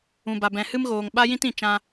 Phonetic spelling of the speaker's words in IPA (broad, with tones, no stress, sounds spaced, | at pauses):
ũ˨ b a˨ b ɛ̃˨ h ɨ˦ m ɣ oː˨ ŋ ɓ a˦ j ĩ˦ t ĩ˨ t͡ʃ ã˧